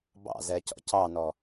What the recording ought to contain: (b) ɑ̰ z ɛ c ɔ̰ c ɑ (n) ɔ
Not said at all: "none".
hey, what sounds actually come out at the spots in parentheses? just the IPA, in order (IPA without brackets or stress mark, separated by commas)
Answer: b, n